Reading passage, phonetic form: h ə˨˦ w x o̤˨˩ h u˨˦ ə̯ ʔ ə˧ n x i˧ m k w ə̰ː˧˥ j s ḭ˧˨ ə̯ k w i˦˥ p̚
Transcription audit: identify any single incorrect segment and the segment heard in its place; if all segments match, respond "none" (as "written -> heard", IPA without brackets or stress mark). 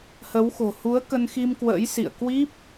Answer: ʔ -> k